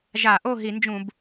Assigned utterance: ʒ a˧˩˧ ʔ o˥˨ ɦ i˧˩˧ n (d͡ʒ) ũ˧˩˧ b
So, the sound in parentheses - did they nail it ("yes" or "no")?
yes